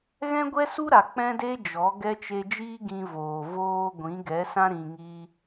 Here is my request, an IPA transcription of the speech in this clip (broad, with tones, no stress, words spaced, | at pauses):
ɣɛ̃˦ɡʷɛ˦su˦ɾa˨ k͡pɛ̃˦de˦d͡ʒɔ˨˦ ɡɛ˧t͡ʃe˧d͡ʒiː˦ ɡĩ˧voː˨ voː˧ ɡʷĩ˨˦ɡɛ˨˦sã˦ ɾĩ˧ŋiː˦